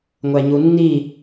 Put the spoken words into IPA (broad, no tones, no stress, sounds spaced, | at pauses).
ŋʷ æ ɲ u nː i